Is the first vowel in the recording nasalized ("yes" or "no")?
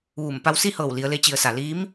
no